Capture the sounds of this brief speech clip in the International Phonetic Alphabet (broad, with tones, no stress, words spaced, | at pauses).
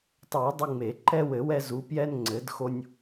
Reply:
tˤɛ˨˩˦ə̯ dˤɨ˦ŋ͡me˨˩˦ ǃɛ˦wɘ˨˩˦ wɛ˦zu˨˥ pjɛ˦n ŋ͡ǀɘ˨˥dxo˦nʲ